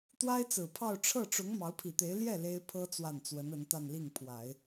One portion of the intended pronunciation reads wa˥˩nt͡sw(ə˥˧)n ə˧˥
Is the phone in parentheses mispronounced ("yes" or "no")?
yes